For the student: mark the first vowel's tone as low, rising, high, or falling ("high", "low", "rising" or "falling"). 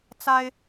high